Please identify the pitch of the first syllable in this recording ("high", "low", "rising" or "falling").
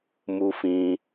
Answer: high